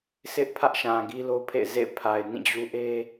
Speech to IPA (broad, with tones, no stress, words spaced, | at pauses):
sʰɪ˦ʔpʰä˦ʔʃã˨ ɡi˦lo˦pʰḛ˦˨ɪ̯ zḛ˦˨ɪ̯pʰa˨ɪ̯ nĩ˦˨d͡ʑu˦ ʔe˦